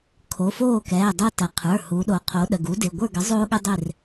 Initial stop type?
aspirated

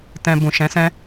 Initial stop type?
plain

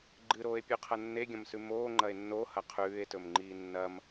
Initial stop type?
click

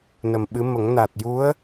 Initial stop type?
implosive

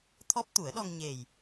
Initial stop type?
aspirated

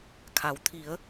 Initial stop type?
aspirated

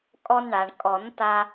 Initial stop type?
ejective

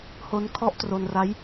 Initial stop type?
aspirated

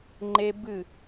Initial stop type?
click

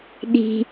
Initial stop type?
implosive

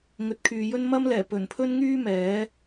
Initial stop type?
plain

